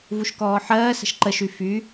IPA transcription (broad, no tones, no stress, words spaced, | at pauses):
vuʃkɔːħɜːsə̤ʃ ǃəʃy fy